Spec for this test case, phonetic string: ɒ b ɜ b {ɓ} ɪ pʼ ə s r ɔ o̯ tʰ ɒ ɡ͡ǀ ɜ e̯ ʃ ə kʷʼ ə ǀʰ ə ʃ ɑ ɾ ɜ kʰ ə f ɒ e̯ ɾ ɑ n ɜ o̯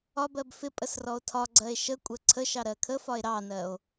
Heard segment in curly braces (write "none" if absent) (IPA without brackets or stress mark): f